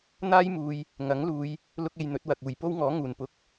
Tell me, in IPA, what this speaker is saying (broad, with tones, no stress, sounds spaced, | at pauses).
n̪ aː˥ j m uː˨ j | ŋ ɐ˨˥ ŋ l uː˨˧ j | l ʊ˥ k̚ e˧ j n̪ ɵ˨˥ t̚ w ɐ˨ k̚ uː˨˩ j p o˥ w ŋ ɔː˨˥ ŋ uː˨˩ n p ʊ˧ k̚